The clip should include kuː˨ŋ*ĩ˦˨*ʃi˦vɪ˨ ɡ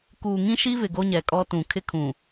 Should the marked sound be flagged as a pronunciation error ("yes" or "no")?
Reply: yes